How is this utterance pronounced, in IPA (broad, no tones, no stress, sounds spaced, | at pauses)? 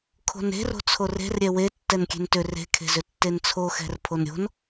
kʰ o̤ n e̤ r o̤ t͡sʰ o r e̤ r ɾʲ ɛ w e tː ɛ n kʲ e̤ n t ʏ r e̤ kʰ e̤ z ʏ tː e n t͡sʰ o x ɛ̤ r pʰ o n ɾʲ o̤ n